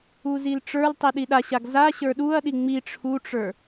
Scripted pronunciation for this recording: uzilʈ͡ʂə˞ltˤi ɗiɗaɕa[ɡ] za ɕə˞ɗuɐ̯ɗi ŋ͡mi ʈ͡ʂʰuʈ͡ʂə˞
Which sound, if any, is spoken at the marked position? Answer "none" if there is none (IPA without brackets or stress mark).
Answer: ɡ